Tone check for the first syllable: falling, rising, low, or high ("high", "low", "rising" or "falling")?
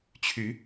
rising